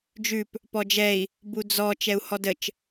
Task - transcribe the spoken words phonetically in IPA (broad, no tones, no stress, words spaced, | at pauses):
d͡ʒʉp | pɔd͡ʒɛi̯ | bud͡zɔ t͡ʃɛu̯hɔdət͡ʃ